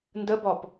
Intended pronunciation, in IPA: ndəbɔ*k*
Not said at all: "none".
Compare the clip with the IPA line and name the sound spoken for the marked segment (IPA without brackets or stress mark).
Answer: p